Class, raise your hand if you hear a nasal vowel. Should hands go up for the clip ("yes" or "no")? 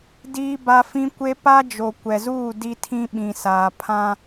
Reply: yes